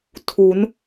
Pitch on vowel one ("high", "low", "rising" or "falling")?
rising